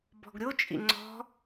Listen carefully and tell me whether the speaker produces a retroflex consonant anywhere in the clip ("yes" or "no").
no